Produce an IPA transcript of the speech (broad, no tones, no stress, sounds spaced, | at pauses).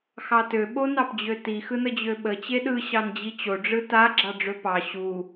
x ɑ t ø ɓ o n ɑ p d͡ʑ ø t i x ɯ n ə d͡ʑ ø ɓ ə t͡ɕ e ɗ ɯ ɕ ɑ n d͡ʑ i t͡ɕ o ɖ͡ʐ ɯ t a ɡ͡ǁ ɑ ɖ͡ʐ ø p ɑ ɕ u